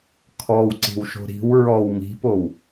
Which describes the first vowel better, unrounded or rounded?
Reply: rounded